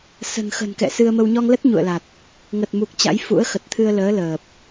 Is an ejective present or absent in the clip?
absent